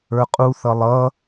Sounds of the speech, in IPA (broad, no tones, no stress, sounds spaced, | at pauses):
ə˞ qʼ u θ ʌ lˠ ʌ